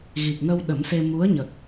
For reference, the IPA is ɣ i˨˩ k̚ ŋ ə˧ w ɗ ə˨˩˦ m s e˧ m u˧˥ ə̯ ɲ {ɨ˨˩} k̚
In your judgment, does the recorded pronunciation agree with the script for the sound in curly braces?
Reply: no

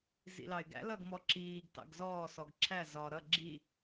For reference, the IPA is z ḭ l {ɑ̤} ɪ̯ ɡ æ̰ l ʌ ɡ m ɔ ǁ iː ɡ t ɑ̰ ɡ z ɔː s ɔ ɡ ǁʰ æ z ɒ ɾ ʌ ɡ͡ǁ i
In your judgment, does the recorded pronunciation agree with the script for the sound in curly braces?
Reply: no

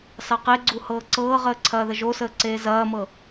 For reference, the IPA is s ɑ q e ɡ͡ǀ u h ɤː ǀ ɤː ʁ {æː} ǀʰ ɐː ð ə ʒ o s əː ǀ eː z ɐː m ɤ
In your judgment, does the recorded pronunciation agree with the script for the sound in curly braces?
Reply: no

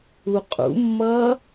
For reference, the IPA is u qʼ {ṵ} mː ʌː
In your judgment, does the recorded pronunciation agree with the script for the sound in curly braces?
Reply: yes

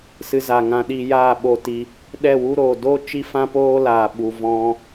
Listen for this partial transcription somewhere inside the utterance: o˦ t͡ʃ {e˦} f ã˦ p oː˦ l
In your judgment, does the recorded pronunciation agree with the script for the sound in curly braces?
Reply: no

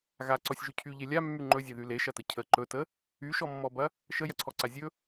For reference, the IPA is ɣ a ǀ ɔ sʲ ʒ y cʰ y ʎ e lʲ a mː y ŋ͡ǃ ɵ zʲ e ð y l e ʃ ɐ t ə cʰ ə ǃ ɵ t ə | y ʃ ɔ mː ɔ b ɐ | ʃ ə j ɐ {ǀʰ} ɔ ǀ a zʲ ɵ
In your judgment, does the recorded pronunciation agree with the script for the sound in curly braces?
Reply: yes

